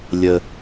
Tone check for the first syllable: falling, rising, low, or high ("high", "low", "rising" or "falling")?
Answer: high